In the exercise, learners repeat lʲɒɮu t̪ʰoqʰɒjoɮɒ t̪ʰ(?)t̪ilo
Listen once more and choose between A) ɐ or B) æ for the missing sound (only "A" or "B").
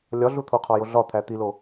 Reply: B